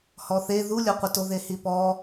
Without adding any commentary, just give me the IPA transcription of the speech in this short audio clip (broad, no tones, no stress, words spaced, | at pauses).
hɔθe ðulʲoqʷɪto ðehipɔ